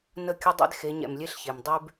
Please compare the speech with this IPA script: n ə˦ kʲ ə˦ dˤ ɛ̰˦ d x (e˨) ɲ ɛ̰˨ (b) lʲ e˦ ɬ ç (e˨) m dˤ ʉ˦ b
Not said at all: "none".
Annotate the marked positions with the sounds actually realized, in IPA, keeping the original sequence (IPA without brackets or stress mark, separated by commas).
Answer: e˨˦, m, e˨